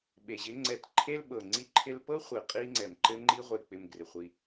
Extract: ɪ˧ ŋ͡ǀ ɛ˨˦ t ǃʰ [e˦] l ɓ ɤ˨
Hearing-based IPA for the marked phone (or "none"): e˦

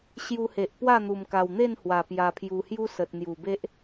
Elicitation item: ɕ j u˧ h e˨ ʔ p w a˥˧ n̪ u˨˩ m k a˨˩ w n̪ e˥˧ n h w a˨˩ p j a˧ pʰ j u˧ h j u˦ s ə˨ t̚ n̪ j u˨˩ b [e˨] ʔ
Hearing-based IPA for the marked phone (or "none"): e˦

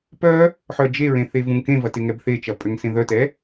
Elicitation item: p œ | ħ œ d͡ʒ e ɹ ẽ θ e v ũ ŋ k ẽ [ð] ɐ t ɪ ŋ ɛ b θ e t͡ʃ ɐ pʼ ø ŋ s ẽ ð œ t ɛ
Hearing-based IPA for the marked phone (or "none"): v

